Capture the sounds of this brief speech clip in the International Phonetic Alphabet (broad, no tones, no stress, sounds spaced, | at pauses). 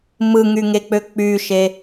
m ɯ ŋ y ŋ e k͡p ø k͡p y ʃ e